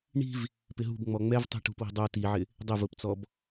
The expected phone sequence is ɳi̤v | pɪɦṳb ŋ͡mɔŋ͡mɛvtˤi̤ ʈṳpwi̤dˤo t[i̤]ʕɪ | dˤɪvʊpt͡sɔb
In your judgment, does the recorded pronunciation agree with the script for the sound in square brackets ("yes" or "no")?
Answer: no